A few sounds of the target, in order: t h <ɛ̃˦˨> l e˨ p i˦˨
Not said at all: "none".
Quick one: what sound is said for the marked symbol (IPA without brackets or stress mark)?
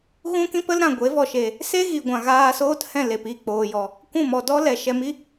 ɛ̃˦˨